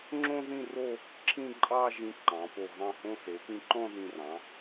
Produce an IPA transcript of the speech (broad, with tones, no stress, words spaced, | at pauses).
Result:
ŋ͡ǁõ˥ðĩ˥˧ro˥˧ | ǁʰĩ˥˧ ǃʼɑ˥˧ʒĩ˧ ǃɑ̃˩˧po˧˩ ɣɑ̃˧˩hõ˧se˩˧ pĩ˧ǃɔ̃˥˧ðĩ˧˩rɑ̃˩˧